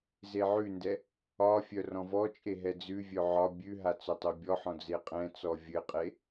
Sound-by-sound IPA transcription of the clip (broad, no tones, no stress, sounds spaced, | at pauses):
z e ʕ ʉ n d ɛ | ɒ fʲ œ r ɔ̃ v ɔ t͡ʃʼ e ɦ ɛ d͡z ʉ vʲ œ ʕ ɒ bʲ ʉ ɦ a t͡s œ tˤ œ bʲ ɔ ħ ɔ̃ d͡z e qʼ ɛ̃ t͡s ɔ vʲ ɘ qʼ e